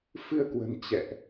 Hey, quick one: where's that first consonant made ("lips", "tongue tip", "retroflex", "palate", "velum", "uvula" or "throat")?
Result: lips